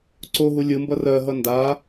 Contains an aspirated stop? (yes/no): no